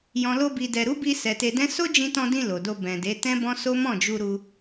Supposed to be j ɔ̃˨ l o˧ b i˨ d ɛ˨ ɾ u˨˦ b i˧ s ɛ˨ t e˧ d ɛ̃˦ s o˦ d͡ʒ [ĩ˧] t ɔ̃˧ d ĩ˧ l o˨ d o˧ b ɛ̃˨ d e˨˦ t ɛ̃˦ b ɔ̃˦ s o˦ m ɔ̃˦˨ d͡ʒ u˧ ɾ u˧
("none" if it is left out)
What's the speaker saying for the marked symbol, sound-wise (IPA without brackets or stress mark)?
ĩ˧